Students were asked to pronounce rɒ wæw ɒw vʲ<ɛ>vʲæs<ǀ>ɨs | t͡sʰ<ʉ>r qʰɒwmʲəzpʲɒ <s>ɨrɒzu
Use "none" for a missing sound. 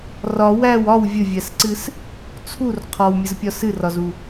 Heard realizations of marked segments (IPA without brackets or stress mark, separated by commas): ə, ǀ, u, s